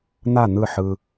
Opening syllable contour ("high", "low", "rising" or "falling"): falling